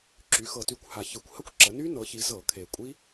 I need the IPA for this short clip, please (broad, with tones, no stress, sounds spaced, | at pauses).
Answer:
ǁ y˩˧ x ɤ˨˩ t y˧˩˧ kʷ h a˨˩ ç ɯ˧˩˧ kʷ h ə˦˥ kʷ ǁ ə˩˧ n y˦˥ n ɤ˩˧ ç i˩˧ z ɤ˧˩˧ kʰ e˨˩ kʷʼ i˦˥